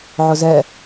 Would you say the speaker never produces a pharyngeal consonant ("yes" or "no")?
no